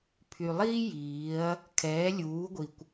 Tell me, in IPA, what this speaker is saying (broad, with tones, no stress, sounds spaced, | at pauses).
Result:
pʰ y˨ lˠ iː˦ j iː˨˦ ɐ̯ | kʰ ɛː˨˦ lʲ uː˨˦ ɡʷ i˨ kʷ